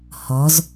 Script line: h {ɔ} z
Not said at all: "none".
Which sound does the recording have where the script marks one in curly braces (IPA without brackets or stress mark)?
ɔ